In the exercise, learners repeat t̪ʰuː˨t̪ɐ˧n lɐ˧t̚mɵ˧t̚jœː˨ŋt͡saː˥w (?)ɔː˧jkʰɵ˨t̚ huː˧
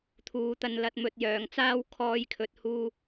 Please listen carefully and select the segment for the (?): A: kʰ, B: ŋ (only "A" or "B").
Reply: A